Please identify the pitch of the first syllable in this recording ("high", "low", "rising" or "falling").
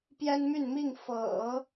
high